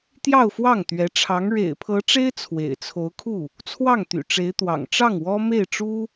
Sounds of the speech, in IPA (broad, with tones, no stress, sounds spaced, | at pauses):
t̪ j ɑ˥˧ ʊ̯ f w ɑ˥˩ ŋ t̪ ɥ ɛ˧˥ ʈ͡ʂʰ ɑ˧˥ ŋ ɻ ḛ˨˩ ɪ̯ pʰ ɤ˧˥ ʈ͡ʂ e˥ ɪ̯ t͡sʰ w ḛ˨˩ ɪ̯ t͡sʰ o˧˥ ʊ̯ kʰ u˥˩ | t͡sʰ w ɑ˥˩ ŋ t̪ y̰˨˩ ʈ͡ʂ e˧˥ ɪ̯ t̪ w ɑ̰˨˩ ŋ ʈ͡ʂ ɑ˥˩ ŋ w ɔ˥ m e˥˩ ɪ̯ ʈ͡ʂ u˥